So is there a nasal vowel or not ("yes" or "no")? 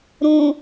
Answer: yes